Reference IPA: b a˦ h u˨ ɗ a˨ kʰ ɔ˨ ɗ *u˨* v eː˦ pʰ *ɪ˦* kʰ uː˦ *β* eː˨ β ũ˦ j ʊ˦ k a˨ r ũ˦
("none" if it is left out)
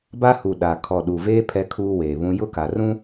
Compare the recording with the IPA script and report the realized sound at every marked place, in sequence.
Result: u˨, ɛ˦, w

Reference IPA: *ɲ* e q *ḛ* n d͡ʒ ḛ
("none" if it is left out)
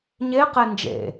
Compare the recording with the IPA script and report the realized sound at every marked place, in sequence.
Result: ɲ, e

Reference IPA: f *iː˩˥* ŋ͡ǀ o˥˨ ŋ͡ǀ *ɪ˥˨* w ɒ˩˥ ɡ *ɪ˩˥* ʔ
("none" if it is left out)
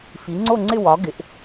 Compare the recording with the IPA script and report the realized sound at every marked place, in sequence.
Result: i˩˥, ɪ˥˨, ɪ˩˥

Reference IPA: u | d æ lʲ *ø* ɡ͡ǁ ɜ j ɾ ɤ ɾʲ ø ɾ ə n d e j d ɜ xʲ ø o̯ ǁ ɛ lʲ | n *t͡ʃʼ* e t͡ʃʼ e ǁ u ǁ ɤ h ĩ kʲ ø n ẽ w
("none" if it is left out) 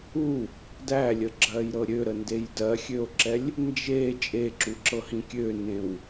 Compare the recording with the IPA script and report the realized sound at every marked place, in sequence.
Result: ə, d͡ʒ

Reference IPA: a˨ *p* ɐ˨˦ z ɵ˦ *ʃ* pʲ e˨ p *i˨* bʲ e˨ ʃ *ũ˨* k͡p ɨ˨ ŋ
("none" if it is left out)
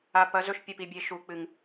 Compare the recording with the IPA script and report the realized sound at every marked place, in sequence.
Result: p, ʃ, i˨, u˨

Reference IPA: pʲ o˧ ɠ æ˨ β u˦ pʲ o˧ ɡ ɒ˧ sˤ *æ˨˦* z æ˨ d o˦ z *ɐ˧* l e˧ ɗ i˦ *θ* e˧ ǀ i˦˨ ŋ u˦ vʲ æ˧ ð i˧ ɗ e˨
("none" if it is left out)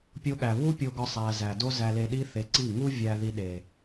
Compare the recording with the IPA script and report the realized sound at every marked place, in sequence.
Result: æ˨, æ˧, θ

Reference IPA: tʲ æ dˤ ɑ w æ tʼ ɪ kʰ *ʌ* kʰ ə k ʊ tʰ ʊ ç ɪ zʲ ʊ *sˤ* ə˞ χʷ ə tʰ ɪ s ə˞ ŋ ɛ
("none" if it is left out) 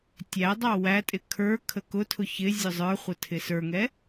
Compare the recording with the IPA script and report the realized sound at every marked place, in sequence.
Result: ə˞, zˤ

